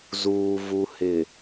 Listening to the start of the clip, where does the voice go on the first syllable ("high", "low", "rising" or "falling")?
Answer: low